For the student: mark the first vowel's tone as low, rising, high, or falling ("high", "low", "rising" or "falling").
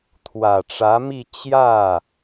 low